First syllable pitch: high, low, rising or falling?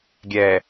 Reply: low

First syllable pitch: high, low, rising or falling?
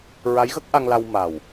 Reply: rising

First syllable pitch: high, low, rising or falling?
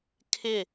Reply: falling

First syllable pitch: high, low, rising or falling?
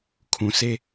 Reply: low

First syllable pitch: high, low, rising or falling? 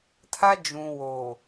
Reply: high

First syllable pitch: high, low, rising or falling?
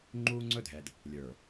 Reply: high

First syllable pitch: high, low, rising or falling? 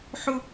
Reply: high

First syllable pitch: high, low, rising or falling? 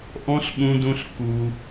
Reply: high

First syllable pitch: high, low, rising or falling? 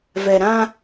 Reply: low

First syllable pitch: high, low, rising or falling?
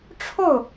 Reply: falling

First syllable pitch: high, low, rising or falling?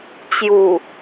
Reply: low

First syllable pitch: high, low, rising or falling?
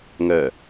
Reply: low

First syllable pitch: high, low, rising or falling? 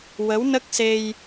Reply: rising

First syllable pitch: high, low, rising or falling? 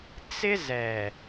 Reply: high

